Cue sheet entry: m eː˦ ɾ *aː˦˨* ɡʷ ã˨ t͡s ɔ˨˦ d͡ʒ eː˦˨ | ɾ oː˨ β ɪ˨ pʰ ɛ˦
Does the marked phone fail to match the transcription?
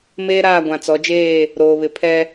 no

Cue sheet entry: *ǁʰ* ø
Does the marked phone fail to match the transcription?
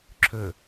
no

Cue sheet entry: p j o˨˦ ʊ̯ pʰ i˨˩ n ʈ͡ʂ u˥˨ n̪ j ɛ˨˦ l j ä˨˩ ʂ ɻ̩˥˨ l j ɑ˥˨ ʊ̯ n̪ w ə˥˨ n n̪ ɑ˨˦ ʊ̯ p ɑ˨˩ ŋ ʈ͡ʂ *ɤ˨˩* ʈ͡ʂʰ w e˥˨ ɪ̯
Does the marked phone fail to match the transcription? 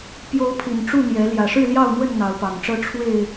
yes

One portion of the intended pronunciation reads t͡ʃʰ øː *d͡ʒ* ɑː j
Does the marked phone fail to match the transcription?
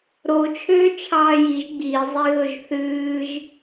yes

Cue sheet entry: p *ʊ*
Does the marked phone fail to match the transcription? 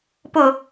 no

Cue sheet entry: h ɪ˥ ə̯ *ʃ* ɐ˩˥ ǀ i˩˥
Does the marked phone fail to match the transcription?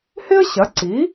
yes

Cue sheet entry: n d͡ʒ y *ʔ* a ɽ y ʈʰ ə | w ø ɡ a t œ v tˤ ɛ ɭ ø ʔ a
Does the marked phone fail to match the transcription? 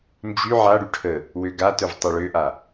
yes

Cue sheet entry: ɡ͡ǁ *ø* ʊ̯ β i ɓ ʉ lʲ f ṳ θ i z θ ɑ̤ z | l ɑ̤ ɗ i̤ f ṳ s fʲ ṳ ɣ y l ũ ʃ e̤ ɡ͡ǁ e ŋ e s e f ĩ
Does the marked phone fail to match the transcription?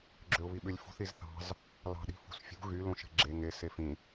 no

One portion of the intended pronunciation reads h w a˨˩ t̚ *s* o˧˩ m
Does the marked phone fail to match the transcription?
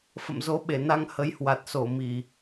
no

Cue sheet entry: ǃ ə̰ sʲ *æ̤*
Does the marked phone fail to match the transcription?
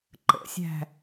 no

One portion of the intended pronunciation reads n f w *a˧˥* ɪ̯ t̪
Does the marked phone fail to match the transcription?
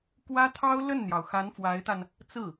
no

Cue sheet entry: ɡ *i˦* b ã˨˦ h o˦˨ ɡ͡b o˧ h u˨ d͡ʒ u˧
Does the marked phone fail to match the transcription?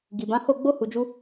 yes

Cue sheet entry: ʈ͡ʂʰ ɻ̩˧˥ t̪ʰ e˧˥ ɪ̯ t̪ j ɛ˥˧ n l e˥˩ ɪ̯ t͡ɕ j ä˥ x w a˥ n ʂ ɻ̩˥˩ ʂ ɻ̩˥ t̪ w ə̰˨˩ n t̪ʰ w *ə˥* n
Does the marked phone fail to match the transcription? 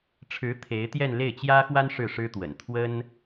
no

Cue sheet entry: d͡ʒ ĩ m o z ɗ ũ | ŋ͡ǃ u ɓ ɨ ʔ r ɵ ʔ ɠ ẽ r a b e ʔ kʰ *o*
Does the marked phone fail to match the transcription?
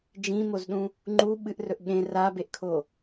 no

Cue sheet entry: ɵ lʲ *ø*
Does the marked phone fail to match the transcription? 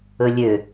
no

